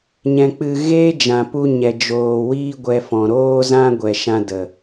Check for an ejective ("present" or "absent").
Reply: absent